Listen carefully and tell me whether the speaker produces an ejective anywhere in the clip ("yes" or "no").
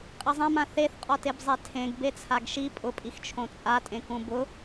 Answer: yes